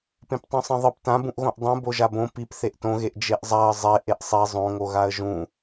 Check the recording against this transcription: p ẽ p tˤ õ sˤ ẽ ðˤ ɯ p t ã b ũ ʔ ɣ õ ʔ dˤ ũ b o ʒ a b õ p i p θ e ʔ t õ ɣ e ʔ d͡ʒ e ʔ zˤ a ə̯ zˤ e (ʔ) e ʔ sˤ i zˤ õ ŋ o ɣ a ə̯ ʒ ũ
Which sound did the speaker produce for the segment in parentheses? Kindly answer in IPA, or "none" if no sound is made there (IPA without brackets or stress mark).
ʔ